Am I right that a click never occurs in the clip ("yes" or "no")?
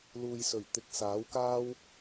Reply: yes